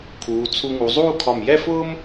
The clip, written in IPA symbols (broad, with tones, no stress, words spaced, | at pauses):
kʰuː˩˧t͡sʰu˧ŋu˩˧ zˤuː˥˧kʰɒ˧˩m jɛ˥˧fʊː˥m